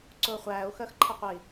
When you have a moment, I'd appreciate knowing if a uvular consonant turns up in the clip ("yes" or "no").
yes